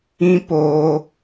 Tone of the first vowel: high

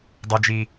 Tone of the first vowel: high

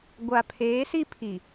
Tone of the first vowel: low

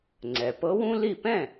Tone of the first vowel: low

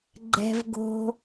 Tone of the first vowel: high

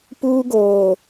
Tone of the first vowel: high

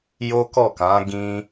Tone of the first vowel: high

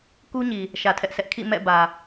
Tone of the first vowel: high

